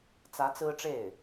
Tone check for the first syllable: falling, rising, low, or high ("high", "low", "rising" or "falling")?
rising